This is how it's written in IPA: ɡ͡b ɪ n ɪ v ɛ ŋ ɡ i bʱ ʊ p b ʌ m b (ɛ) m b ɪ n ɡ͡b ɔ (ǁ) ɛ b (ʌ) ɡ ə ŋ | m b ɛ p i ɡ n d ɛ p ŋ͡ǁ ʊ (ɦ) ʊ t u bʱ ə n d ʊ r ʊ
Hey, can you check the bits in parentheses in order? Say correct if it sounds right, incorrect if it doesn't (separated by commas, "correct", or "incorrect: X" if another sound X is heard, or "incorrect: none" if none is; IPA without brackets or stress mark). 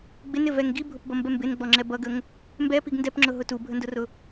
correct, incorrect: ŋ͡ǁ, correct, correct